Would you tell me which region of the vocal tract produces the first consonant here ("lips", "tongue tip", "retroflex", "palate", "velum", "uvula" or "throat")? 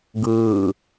velum